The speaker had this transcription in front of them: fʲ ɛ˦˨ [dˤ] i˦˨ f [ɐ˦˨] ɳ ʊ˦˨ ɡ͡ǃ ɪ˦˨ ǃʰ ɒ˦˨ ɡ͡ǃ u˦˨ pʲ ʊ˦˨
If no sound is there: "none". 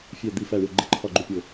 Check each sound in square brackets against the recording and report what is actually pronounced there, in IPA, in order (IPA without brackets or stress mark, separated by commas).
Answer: d̪, æ˦˨